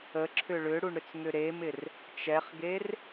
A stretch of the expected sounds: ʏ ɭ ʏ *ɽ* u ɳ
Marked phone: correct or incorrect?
correct